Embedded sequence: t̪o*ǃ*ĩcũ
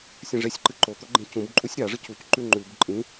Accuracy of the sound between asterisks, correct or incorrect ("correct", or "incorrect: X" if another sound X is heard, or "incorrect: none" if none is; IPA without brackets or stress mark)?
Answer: incorrect: ɡ͡ǃ